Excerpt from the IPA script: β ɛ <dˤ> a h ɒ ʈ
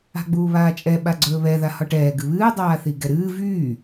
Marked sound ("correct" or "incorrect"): incorrect